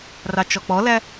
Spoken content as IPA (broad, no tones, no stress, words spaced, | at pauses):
rɑt͡ʃɔk͡pɔlæ